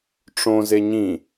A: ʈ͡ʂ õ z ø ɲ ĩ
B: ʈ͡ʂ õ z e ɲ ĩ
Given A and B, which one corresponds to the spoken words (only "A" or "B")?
B